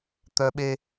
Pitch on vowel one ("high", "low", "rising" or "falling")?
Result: high